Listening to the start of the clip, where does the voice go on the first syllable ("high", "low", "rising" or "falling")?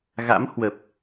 rising